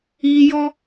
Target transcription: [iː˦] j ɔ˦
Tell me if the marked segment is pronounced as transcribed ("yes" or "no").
yes